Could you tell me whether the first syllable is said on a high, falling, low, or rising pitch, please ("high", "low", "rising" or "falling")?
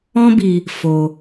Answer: high